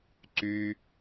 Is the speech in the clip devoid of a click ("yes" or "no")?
no